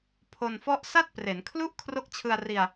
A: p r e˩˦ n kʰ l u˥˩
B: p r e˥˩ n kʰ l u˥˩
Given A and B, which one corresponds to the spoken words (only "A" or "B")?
A